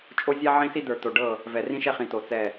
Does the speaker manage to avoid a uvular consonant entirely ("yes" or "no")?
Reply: no